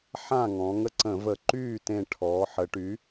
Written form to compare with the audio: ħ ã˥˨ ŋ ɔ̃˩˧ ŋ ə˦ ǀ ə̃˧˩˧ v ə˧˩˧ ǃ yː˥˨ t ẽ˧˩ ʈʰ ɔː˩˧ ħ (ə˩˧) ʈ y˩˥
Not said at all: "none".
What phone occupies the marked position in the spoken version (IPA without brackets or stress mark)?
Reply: ə˩˧